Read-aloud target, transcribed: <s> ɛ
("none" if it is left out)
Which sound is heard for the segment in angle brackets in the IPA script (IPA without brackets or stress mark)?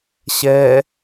ɕ